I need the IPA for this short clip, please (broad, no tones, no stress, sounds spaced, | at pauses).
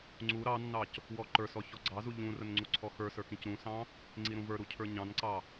ŋ͡ǀ u ɾ ɑ nː ɑ c | w ɔ ǃ ə˞ s ɔ ç ɔ ɡ͡ǀ ɑ z u ʎ ũ r ə n ŋ͡ǀ u ǀʰ ɔ x ə˞ s ə˞ k ĩ c ɾ ũ s ɑ̃ | ŋ͡ǀ i ɾ ũ v ə˞ ɾ u cʰ ə˞ ɲ ɑ̃ n ǀ ɑ